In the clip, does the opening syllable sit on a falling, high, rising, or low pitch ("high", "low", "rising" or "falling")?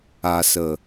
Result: low